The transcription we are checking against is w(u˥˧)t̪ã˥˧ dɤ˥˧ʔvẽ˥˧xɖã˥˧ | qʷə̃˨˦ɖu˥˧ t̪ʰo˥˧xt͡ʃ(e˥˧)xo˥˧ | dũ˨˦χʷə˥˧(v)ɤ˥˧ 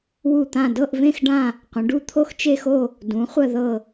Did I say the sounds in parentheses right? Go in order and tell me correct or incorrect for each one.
correct, correct, incorrect: ð

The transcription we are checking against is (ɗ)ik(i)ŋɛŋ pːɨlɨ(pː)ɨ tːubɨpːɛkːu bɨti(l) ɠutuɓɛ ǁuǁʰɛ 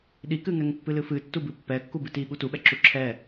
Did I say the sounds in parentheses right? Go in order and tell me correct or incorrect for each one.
correct, incorrect: ɨ, incorrect: f, incorrect: none

